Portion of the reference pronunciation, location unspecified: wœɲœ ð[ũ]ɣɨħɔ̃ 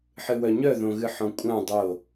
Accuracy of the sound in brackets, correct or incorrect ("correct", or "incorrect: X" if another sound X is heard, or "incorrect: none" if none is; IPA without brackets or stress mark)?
incorrect: õ